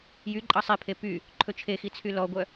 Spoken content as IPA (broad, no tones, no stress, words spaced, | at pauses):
jyǃʼɑ sˤepʰe py | ǃʰɵt͡ʃʰexi t͡sʰylɔɡʷœ